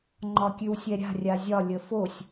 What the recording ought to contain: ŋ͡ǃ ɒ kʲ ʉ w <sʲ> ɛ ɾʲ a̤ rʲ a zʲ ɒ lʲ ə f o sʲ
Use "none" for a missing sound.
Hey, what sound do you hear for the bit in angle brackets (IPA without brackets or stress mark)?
sʲ